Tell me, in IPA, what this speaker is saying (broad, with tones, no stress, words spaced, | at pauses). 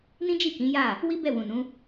nĩ˦d͡ʒi˦˨kĩ˨˦ ja˦˨ | wi˦bɛ˦˨ wũ˨nũ˨˦